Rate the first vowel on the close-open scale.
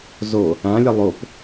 mid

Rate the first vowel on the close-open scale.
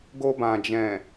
mid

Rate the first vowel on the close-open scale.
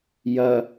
open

